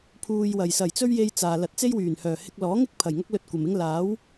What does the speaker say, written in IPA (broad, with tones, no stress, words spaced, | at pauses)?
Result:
pʰuː˧jwɐ˨j sɐ˨˩jt͡sɵ˥ɥje˧j t͡saː˨ lɐ˨˥t̚t͡se˥jwyː˨˩nhœː˨˩ hɪ˧k̚lɔː˨˥ŋɪ˥k̚ pʰɐ˨˩jŋɐ˥k̚lɵ˧t̚ kʷɐ˨mɪ˥ŋ laː˨˥w